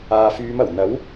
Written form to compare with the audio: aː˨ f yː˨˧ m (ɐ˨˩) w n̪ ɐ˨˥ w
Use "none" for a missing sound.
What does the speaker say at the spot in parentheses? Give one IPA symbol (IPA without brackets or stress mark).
ɐ˨˩